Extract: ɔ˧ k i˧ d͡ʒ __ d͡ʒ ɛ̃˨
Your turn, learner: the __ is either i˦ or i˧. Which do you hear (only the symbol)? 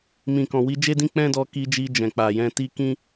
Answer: i˧